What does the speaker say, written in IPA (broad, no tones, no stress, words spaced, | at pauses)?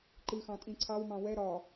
ǃɨxɑ̃ tʼĩǀʰɑwmɑ̃ wɛ ɾɒ